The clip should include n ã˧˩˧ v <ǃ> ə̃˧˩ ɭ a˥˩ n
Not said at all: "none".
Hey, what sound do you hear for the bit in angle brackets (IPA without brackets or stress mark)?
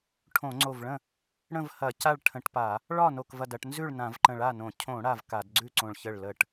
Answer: ǃ